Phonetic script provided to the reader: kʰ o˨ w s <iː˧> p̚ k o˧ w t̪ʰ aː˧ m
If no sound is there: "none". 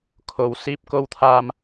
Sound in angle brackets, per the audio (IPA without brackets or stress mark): iː˧